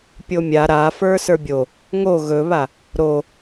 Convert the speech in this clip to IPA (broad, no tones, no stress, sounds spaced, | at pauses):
pʲ o mʲ a ɾ a f ə˞ s ə˞ bʲ o | ŋ o ɣ ɵ β a | ɾ o